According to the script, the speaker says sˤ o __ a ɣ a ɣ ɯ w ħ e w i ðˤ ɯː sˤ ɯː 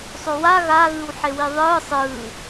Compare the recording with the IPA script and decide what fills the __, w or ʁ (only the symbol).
w